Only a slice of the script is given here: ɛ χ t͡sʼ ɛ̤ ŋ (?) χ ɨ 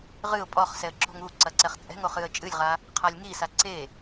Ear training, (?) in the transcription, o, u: o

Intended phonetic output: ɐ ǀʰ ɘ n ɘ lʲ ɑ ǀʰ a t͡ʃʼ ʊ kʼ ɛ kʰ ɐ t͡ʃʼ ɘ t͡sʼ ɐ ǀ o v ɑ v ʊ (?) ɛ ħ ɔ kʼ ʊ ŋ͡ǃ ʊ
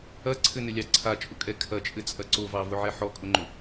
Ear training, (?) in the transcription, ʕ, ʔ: ʕ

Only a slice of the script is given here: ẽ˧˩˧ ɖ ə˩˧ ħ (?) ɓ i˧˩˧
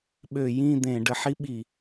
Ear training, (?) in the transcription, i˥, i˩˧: i˥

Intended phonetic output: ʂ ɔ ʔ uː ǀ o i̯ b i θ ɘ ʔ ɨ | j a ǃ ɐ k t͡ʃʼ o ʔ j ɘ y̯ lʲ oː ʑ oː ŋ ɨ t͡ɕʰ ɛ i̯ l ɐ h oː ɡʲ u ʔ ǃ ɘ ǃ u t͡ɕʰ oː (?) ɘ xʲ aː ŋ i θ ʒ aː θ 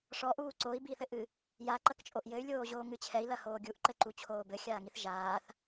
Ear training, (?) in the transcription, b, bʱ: b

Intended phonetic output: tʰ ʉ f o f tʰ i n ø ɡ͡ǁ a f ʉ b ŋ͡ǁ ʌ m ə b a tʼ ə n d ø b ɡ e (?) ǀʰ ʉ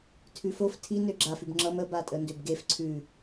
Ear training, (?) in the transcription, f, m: f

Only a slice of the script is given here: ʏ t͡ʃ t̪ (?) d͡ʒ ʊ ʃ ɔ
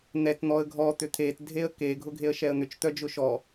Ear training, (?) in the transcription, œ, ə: œ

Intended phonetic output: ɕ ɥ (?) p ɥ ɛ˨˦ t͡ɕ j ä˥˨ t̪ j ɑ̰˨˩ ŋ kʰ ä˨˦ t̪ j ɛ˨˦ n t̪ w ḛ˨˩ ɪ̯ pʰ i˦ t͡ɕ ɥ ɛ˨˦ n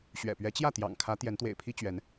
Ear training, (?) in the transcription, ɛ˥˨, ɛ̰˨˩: ɛ̰˨˩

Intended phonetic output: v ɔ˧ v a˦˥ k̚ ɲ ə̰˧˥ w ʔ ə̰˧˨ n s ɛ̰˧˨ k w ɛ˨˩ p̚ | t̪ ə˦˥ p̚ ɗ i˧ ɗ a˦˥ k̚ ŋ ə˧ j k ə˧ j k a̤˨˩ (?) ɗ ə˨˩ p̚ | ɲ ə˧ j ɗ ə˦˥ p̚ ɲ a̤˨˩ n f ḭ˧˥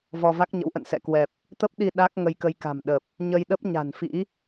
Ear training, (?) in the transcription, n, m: m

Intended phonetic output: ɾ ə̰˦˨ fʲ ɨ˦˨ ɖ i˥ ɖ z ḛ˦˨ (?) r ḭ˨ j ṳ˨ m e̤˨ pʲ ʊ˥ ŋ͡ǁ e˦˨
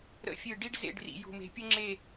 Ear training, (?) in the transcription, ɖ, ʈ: ɖ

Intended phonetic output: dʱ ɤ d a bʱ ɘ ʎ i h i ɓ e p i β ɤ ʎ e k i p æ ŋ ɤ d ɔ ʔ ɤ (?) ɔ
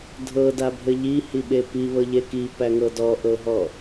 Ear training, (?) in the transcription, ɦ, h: ɦ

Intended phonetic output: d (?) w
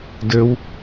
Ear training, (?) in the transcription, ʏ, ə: ə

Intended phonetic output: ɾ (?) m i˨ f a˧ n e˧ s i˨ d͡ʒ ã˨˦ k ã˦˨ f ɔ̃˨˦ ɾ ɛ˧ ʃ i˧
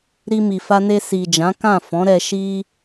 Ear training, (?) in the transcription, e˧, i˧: i˧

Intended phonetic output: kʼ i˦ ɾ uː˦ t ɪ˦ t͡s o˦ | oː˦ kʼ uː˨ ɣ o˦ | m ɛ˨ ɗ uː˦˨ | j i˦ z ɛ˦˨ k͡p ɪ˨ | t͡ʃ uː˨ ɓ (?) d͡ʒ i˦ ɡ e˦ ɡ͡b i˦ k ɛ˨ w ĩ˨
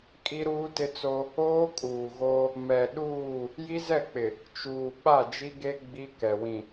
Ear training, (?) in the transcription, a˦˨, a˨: a˦˨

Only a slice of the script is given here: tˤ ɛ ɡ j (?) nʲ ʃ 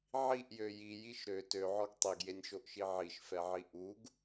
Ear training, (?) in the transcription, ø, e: e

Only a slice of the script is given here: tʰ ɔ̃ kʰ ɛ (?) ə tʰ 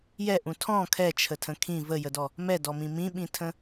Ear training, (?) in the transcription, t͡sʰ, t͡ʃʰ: t͡ʃʰ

